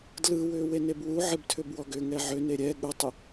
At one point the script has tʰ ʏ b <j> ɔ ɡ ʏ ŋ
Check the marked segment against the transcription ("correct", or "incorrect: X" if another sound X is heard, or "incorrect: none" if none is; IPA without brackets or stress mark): incorrect: w